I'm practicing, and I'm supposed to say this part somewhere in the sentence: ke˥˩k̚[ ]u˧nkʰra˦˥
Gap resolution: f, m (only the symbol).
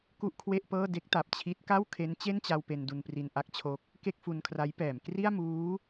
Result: f